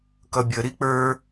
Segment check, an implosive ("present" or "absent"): absent